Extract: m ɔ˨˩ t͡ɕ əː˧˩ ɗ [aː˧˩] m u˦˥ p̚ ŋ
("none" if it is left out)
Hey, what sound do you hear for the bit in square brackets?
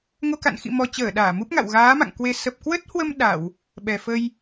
aː˧˩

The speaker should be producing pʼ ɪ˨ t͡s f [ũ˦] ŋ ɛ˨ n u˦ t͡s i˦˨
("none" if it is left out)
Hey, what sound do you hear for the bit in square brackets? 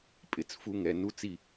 u˦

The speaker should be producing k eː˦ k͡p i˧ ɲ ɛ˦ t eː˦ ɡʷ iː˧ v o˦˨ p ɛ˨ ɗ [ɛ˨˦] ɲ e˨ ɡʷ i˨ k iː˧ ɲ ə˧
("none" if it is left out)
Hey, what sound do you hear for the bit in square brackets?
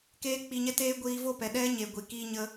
ɛ˦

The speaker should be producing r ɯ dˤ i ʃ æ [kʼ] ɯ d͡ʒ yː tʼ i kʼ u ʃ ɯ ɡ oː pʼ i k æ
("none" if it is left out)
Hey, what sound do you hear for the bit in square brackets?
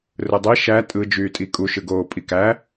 tʼ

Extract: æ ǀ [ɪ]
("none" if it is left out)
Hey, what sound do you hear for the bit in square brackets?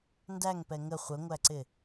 ɪ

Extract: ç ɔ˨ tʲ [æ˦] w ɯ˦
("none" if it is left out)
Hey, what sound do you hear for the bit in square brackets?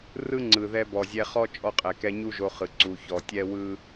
ɛ˦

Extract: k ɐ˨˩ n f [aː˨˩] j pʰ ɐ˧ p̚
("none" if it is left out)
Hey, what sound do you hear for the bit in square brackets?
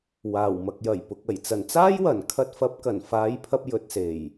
aː˨˧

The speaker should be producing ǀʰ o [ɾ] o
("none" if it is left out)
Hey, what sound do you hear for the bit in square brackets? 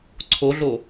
ɮ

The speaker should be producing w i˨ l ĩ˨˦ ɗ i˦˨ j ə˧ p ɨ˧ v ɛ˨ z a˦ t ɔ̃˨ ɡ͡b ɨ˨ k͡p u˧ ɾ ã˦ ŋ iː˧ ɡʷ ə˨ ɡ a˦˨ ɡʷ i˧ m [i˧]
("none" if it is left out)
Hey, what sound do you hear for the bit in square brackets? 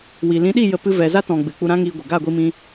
ĩ˧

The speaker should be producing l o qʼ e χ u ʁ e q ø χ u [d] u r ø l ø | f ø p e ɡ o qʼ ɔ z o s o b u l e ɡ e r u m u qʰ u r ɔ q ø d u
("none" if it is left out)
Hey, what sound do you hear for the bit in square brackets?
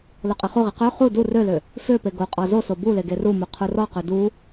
d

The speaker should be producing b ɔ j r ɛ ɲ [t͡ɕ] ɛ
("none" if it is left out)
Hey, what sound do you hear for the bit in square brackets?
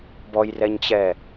t͡ɕ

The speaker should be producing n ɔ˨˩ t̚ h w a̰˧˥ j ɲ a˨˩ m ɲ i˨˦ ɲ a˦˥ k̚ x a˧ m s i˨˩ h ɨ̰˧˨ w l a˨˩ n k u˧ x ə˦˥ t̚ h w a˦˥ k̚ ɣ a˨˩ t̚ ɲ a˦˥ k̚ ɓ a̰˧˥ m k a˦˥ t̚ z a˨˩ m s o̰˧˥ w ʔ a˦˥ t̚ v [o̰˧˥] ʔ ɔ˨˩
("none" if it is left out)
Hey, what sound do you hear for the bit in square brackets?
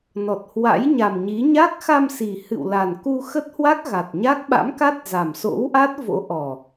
o̰˧˥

